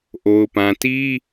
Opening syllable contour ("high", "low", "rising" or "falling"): low